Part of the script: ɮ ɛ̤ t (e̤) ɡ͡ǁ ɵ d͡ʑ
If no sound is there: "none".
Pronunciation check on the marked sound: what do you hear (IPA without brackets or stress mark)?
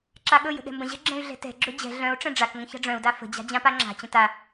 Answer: ɛ̤